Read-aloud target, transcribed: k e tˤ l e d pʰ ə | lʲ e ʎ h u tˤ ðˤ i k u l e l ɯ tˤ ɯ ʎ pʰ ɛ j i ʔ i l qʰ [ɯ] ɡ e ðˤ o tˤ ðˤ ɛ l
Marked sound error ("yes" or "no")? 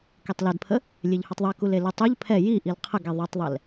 yes